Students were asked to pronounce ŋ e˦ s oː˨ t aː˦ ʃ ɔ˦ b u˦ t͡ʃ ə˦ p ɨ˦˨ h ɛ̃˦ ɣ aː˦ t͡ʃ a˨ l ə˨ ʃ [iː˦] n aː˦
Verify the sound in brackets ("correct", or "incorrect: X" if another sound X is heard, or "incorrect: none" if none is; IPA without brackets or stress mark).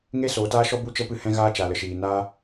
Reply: incorrect: iː˨